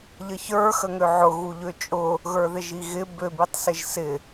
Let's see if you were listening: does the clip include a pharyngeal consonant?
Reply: yes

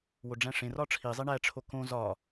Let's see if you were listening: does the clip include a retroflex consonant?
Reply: yes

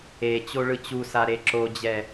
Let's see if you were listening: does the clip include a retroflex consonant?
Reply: yes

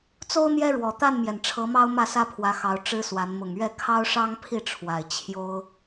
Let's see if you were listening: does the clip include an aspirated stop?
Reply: yes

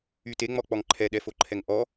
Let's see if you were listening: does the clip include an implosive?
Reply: yes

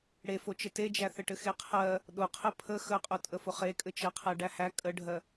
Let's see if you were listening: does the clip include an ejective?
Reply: yes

